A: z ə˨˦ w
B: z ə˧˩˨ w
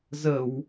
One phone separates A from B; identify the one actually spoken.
B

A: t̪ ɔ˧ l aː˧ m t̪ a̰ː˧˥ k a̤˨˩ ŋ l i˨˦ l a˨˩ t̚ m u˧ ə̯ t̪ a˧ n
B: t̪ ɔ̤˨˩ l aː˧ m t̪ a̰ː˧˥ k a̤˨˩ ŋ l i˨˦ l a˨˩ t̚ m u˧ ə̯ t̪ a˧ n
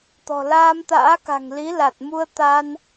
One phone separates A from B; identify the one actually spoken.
B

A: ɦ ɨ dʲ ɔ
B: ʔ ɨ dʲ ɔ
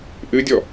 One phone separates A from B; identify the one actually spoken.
B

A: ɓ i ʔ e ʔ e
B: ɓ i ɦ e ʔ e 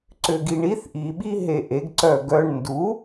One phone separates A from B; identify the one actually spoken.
B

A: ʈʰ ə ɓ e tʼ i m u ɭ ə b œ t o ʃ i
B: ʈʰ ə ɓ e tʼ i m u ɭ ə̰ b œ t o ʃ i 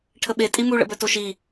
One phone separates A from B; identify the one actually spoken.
B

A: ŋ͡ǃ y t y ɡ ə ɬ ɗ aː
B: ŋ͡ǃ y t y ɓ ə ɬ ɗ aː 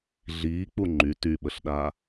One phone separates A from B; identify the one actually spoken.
B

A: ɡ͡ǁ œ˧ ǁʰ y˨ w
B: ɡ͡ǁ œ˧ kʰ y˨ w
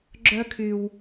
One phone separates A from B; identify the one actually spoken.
B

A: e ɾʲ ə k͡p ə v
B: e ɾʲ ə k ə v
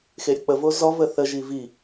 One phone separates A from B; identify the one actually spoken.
A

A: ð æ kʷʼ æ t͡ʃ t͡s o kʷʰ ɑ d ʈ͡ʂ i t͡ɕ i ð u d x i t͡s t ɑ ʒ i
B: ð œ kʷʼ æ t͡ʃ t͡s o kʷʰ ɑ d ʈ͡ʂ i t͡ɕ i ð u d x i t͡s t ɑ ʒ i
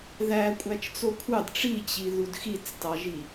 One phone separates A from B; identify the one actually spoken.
A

